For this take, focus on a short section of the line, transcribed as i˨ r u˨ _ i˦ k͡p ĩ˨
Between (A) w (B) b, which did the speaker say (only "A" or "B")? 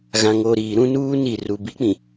B